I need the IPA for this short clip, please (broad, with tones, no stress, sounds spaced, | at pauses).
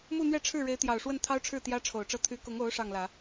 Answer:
m u˥˧ n̪ ɥ ɛ˥˧ ʈ͡ʂʰ ɻ̩˥˩ ɻ e˧˥ ɪ̯ t̪ j ɑ˨˩ ʊ̯ ʂ w ə˥˩ n t̪ʰ ɑ˥ ʊ̯ ʈ͡ʂʰ ɻ̩˥˩ t̪ j ä˥ ʈ͡ʂʰ o˨˩ ʊ̯ ʈ͡ʂ ɤ˥˩ t̪ʰ y˧˥ k ʊ˧˥ ŋ o˧˥ ʊ̯ ʂ ɑ˥˩ ŋ l ä˨˩˦